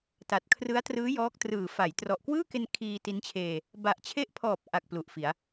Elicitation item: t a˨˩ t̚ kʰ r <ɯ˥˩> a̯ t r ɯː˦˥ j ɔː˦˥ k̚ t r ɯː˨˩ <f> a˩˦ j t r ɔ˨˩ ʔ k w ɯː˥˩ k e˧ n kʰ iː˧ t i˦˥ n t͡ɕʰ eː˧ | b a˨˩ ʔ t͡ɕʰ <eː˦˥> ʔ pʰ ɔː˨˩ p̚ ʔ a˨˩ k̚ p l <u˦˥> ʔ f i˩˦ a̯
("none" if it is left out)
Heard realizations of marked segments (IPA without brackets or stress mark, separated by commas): ɯ˦˥, f, e˦˥, u˨˩